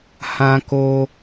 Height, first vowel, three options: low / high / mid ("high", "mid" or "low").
low